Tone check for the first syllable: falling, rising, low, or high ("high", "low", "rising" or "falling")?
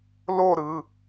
falling